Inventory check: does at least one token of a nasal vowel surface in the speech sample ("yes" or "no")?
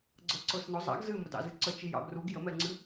no